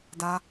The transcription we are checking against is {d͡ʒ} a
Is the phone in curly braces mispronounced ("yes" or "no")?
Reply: yes